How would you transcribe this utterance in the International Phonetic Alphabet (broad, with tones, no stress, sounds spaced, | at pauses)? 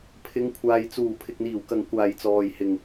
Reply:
pʰ ɪ˨˧ ŋ kʷʰ aː˨ j t͡s uː˨˩ pʰ ɪ˨ k̚ n̪ iː˨˩ w k ɐ˨ ŋ kʷ aː˨ j t͡s ɔː˨ j h ɪ˨ ŋ